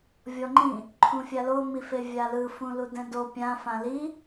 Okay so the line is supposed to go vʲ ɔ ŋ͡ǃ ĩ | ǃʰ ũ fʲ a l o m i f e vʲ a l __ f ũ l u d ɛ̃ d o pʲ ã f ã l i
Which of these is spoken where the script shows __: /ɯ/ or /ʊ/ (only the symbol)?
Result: ɯ